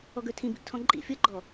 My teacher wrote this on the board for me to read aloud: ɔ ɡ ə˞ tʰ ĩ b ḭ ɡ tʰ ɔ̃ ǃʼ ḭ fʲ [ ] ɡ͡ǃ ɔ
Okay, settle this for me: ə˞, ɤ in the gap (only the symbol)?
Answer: ɤ